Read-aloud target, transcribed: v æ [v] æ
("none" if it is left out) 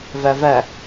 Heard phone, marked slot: v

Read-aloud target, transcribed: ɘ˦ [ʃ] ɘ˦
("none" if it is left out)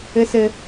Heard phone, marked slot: s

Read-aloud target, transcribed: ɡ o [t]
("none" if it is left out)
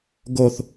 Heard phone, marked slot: θ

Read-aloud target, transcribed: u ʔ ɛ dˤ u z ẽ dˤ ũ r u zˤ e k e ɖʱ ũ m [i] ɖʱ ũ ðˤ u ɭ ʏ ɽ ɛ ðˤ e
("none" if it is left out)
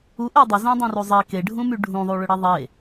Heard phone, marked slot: y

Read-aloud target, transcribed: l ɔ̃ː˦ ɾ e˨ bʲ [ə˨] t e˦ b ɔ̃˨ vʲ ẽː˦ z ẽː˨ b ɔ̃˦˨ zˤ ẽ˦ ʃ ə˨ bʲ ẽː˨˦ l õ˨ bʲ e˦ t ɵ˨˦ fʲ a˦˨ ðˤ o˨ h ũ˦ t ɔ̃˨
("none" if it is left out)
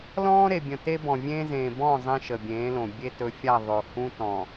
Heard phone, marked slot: ə̃˨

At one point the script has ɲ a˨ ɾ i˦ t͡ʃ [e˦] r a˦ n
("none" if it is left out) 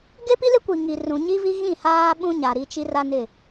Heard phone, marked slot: i˦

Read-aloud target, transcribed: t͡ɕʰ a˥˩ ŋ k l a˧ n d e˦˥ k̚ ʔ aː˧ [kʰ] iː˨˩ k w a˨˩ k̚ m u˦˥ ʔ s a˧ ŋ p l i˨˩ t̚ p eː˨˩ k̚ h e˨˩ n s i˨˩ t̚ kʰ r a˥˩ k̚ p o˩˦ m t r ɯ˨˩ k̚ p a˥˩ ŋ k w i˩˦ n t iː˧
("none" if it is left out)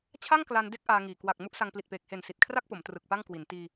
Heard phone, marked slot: ŋ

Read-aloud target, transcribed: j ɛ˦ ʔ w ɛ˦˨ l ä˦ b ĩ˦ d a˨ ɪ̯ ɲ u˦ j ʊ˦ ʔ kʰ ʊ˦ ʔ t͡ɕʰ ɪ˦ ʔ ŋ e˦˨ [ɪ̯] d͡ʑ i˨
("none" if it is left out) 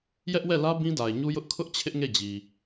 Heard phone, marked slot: none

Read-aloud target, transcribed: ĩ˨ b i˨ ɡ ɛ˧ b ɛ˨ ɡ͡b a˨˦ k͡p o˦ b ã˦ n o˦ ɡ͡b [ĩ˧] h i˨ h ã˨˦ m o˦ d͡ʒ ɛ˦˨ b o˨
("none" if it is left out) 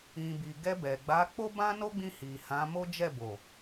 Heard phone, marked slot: ĩ˧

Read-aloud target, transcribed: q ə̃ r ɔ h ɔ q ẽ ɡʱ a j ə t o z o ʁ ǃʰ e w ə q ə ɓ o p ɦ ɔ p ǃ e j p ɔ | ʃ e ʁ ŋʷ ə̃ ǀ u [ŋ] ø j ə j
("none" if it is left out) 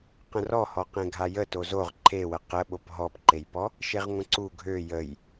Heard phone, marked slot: ɡʱ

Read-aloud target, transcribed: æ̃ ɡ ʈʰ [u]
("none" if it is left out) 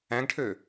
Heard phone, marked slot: ø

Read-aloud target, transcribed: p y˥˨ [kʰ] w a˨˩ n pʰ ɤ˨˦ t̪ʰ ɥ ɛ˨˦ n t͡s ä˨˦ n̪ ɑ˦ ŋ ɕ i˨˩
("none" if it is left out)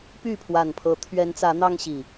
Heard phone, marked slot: pʰ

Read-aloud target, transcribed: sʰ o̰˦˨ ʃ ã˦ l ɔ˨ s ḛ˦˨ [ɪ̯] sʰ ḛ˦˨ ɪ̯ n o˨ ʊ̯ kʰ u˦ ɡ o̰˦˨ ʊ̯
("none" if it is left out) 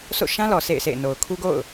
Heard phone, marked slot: ɪ̯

